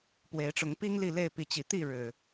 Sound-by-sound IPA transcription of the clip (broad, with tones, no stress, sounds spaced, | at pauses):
p w e˨˦ ɪ̯ ʈ͡ʂ ʊ˨˦ ŋ p i˦ ŋ l i˥˨ l e˥˨ ɪ̯ p i˨˦ t͡ɕ i˨˩ t̪ i˥˨ ɻ ɻ̩˨˩